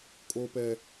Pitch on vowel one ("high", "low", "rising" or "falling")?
low